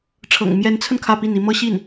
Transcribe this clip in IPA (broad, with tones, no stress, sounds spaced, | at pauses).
ʈ͡ʂʰ ɤ̰˨˩ ŋ m j ɛ˧˥ n t͡sʰ ə˧ n kʰ ä˥˧ p i˥˩ n i˥ m ɤ˥ ɕ i˥˩ n